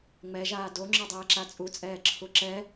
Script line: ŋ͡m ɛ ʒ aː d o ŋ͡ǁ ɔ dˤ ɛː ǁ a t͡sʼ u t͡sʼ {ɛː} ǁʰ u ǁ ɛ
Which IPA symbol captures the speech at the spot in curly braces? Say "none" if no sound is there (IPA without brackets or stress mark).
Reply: ɛː